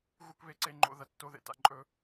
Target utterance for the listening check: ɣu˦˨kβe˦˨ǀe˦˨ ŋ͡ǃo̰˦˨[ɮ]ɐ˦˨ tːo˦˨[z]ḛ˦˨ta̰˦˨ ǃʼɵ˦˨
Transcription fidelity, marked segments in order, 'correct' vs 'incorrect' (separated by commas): incorrect, incorrect